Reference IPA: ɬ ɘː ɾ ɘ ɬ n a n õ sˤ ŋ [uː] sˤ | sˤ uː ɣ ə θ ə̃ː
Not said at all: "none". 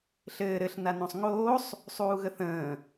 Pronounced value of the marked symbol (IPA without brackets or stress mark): oː